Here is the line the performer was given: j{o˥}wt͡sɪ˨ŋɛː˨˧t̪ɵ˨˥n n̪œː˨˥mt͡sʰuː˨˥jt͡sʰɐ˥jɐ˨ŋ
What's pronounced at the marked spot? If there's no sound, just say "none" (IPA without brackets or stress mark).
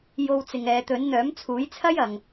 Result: o˧